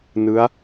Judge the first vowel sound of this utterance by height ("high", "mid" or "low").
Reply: high